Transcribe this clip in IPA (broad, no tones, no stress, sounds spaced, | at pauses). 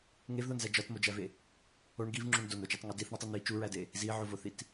ŋ e v ð o n z æ d͡ʒ ɒ t m o d͡ʒ æ v e | o ɳ ɡ i v ŋ͡ǁ u ɳ d o n o d͡ʒ o tˤ ŋ u d i θ ɳ i tˤ i n̪ i t͡ʃ u ɹ æ d e | z i ʕ o v o θ i t